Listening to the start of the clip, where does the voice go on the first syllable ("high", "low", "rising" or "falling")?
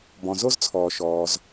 low